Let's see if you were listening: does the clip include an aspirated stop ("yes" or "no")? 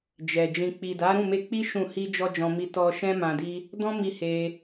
no